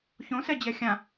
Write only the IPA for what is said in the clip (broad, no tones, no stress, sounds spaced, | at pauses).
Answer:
ç õ s ɛ d͡ʑ ɛ xʲ ã